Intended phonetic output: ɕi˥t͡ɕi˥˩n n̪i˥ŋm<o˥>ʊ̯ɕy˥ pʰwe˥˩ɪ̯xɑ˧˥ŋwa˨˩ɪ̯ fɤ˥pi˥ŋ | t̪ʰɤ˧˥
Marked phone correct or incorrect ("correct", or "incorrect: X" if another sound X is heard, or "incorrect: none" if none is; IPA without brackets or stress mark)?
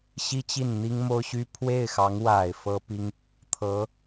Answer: correct